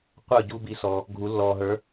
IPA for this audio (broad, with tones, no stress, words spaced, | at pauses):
qʷə˞˥˨ɟu˦ bi˨˦sɔ˨ | ɡʱu˨˩˦lːɔː˨ɦə˞˨˦